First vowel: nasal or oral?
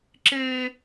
oral